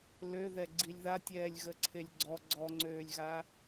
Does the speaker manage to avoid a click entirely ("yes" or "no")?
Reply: no